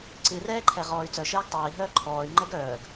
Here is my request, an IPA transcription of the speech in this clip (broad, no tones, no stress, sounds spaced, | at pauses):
ǀ ɨ r ɛː ǃʰ ɛ ʁ ɔː y̯ t͡s œ ʃ ɛː ɡ tˤ œː i̯ ɦ œː ǃʰ ɔː y̯ ŋ͡ǃ ɛ ɡ œː ɡ